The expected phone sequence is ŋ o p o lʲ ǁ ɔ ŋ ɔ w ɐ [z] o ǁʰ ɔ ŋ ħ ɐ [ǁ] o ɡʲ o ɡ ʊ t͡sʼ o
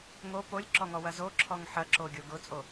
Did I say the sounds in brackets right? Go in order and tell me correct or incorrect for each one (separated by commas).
correct, correct